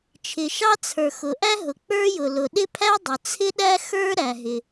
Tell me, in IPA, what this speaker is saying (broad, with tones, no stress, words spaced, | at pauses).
t͡ʃʰɪ˩ʃɑ˥t͡sʰə˞˩ xʊ˩ʔæ˥ɦʊ˩ k͡pə˞˥jʊ˩ lʊ˩ɗɪ˥ pʰæ˥dˤʊ˩ t͡sʰɪ˥ɗæ˥ xə˞˥ ɾæ˩ɦɪ˩